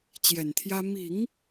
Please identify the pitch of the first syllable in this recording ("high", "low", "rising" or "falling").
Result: low